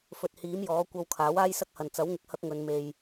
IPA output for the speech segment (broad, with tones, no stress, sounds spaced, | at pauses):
f ɵ˨ t̚ h iː˨˥ m j ɔː˨˥ kʷ ɐ˧ w kʰ aː˨˥ w aː˥ j s ɐ˥ k̚ h ɐ˨ n t͡s ɐ˨˥ w ŋ ɪ˨ k̚ h ɐ˥ k̚ ŋ ɵ˨˧ n m e˨ j